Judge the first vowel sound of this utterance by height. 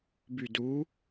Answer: high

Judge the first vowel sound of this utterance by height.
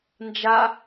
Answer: low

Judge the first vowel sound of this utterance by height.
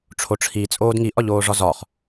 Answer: mid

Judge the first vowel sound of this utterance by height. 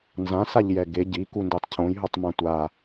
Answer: low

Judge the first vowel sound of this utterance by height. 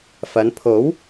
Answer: low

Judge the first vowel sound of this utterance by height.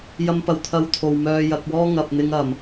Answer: low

